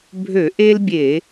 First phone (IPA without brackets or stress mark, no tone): bʱ